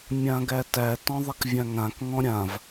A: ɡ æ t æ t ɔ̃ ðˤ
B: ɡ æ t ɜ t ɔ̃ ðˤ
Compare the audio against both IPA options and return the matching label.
A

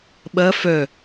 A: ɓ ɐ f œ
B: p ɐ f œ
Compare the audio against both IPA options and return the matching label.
A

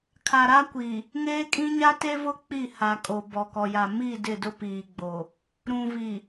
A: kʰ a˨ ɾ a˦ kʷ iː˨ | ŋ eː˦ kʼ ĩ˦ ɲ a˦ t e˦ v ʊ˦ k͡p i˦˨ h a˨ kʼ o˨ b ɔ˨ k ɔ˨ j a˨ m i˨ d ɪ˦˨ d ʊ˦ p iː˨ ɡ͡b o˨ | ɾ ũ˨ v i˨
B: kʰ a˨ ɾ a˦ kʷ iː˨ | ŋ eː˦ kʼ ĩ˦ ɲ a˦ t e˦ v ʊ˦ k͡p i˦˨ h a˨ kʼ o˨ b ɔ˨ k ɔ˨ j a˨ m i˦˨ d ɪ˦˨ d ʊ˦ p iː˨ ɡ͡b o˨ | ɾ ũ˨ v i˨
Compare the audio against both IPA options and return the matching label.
B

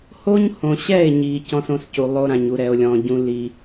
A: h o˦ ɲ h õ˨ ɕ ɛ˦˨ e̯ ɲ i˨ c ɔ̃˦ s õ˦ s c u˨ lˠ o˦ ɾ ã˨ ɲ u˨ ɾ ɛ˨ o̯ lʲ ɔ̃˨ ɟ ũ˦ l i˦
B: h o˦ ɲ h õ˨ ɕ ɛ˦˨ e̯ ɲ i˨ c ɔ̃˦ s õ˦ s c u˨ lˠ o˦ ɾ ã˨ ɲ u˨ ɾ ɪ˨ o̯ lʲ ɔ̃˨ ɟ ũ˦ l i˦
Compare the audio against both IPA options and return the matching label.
A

